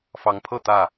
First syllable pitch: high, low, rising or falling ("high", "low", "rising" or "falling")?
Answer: rising